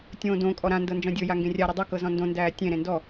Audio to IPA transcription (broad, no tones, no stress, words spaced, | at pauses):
tʲõːdõkʼɔ ɾãndɤ nd͡ʒɔ̃dʲɤja ŋɡẽrʲaɾe dˤɤkɤ zɔ̃ndõndæː tʲẽɾẽ ndɔ